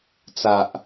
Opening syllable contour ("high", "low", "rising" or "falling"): low